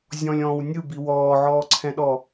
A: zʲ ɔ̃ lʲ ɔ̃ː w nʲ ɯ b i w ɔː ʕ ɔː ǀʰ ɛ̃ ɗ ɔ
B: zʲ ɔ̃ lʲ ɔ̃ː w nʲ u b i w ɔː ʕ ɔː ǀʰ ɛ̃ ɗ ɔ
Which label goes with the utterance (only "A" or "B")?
A